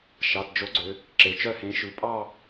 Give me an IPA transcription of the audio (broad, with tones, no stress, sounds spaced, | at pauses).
ʃ ɑ˩˧˩ t d͡ʒ o˨˥ ɡ͡ǀ ø˩˧ | ǁ e˩˧ t͡ʃ œ˥˧ h ẽ˨˥ ʃ ʉ˩˧ pʼ ɑ˥˧